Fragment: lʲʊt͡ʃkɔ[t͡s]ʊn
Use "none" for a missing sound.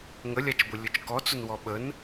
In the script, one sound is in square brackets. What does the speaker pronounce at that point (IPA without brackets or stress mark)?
t͡s